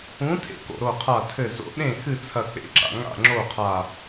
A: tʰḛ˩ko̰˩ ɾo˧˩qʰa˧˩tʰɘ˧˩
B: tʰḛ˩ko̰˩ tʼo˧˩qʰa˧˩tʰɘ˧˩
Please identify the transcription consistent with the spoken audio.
A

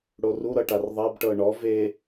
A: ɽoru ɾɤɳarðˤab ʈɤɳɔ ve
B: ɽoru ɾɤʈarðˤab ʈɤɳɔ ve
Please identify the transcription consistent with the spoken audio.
B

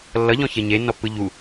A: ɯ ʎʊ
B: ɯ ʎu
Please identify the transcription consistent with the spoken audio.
B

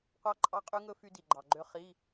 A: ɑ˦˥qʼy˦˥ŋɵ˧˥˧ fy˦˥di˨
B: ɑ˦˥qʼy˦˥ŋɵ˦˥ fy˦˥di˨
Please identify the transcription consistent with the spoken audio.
B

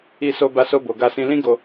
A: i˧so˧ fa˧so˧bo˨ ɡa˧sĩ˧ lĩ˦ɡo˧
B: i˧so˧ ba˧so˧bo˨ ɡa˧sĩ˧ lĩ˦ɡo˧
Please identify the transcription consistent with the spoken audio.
B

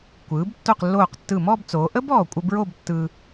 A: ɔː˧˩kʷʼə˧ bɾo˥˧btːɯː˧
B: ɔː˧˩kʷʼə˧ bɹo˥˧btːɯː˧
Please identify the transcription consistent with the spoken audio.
B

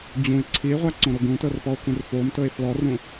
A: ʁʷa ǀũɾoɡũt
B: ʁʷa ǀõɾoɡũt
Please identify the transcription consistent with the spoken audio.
B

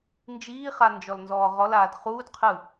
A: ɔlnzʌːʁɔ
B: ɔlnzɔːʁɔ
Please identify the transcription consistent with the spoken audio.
B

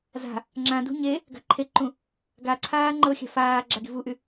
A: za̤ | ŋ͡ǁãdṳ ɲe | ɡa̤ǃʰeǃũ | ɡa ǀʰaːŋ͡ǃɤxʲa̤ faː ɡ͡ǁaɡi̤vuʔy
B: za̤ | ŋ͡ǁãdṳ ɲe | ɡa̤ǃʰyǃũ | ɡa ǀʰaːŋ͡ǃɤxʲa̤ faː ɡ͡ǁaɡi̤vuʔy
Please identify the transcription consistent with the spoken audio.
A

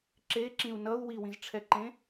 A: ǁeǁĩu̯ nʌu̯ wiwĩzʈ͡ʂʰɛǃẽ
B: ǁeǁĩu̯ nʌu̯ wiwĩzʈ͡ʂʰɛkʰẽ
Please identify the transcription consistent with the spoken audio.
A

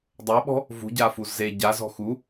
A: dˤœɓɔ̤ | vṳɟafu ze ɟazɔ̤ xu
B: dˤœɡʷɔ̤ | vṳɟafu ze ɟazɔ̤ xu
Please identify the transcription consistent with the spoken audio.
A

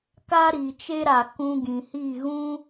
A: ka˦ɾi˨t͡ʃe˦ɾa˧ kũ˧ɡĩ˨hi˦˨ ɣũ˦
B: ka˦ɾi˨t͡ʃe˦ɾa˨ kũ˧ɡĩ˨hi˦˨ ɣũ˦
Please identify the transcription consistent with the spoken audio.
B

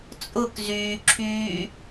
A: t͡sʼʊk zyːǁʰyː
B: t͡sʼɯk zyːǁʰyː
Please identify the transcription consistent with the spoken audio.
A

